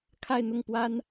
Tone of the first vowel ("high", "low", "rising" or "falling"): falling